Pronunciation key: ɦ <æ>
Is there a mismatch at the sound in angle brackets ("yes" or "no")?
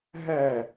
yes